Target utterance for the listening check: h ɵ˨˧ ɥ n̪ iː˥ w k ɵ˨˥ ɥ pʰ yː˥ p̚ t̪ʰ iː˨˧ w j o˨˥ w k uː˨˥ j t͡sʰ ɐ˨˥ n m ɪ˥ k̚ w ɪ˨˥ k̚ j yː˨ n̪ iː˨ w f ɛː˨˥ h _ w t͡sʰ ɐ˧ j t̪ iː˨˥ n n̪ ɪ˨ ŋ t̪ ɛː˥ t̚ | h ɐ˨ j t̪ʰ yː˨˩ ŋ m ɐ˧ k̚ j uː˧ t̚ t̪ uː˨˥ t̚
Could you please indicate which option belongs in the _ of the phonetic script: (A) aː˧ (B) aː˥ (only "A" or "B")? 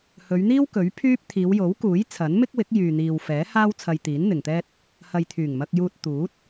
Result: B